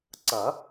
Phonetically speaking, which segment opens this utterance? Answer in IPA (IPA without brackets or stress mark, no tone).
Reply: ǀ